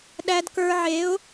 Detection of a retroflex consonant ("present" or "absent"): absent